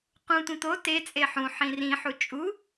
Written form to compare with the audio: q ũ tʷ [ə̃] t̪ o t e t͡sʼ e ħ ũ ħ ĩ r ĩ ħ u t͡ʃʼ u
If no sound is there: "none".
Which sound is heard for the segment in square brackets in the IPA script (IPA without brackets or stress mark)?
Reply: ə̃